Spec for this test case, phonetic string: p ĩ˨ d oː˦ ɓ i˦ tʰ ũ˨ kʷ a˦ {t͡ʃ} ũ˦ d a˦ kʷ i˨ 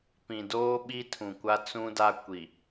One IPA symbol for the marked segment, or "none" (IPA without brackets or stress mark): t͡s